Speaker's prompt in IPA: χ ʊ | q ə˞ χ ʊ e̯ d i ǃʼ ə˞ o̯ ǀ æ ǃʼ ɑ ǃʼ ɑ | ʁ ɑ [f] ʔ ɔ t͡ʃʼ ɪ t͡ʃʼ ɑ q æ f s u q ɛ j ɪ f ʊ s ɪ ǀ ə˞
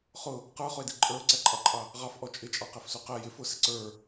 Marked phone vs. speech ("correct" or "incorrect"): correct